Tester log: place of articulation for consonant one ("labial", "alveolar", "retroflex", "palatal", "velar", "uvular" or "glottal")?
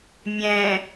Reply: labial